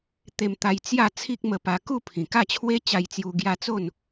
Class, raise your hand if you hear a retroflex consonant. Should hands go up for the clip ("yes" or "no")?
no